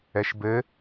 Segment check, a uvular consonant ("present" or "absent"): absent